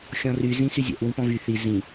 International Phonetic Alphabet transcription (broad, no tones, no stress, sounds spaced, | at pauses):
xʲ ɔ̃ r y z ĩ s y zʲ ɛ̰ ʔ w ĩ p ɔ̃ v y θ i z ĩ